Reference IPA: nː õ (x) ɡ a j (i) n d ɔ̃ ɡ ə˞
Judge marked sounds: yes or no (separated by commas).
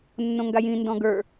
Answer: no, no